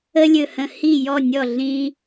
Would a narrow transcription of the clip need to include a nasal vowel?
yes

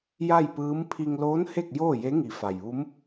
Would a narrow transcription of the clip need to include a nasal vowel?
no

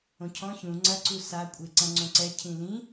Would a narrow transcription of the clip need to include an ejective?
yes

